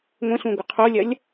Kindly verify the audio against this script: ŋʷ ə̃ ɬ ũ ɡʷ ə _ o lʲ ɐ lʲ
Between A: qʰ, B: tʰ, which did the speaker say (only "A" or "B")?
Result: A